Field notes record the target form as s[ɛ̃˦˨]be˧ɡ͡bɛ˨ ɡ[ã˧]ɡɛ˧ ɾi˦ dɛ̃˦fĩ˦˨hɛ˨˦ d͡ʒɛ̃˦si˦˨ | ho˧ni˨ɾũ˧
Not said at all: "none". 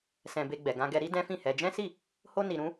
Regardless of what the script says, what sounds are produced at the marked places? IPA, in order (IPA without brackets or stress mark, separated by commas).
ɛ̃˧, ã˧